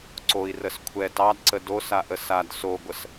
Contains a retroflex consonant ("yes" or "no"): no